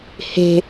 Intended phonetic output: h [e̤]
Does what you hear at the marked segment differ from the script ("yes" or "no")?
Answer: no